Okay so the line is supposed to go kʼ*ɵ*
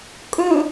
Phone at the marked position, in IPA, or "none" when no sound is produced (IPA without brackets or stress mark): ɵ